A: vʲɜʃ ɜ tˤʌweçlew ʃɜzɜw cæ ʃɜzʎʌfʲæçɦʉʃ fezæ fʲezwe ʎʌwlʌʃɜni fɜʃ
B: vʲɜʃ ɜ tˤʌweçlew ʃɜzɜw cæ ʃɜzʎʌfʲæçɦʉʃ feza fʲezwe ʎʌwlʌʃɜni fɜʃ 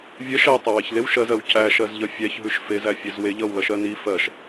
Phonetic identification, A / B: A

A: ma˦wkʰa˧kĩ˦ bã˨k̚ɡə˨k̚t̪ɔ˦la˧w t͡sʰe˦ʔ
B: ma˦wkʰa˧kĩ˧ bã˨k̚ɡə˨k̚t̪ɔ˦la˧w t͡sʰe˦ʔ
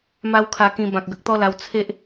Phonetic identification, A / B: B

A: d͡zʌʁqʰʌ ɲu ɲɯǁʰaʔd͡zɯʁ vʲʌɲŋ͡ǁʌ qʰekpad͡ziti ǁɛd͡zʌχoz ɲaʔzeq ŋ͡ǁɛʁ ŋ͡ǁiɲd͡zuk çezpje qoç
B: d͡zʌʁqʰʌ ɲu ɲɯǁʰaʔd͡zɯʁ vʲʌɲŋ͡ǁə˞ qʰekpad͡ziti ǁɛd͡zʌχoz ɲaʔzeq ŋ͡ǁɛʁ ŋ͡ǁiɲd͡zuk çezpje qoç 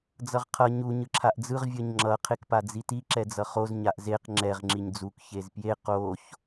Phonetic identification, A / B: A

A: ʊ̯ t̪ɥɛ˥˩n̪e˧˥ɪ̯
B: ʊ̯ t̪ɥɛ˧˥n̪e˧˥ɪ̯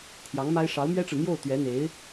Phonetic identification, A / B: B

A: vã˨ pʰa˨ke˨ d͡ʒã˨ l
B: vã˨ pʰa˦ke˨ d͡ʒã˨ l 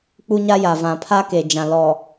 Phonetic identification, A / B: B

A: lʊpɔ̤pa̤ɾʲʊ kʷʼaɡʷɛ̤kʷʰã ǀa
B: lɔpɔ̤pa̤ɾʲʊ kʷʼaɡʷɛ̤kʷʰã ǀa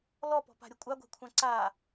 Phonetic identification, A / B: B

